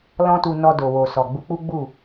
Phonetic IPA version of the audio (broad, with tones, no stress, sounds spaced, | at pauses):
l ɔ̃˦ t u˧ n ɔ˧ d o˨ w o˨ s ɔ˨ ɡ͡b u˧ k͡p u˦ ɡ͡b u˦˨